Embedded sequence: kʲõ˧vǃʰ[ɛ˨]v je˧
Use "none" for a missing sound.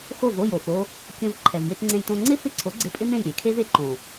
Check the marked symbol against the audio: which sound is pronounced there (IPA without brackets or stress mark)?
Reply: ɛ˨